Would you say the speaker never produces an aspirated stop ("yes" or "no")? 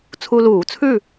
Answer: no